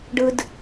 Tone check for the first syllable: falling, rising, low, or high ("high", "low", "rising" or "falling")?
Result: high